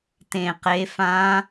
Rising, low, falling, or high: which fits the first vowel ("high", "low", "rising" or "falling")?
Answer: falling